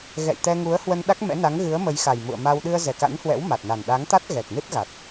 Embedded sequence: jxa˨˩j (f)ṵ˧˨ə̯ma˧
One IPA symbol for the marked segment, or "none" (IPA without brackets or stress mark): m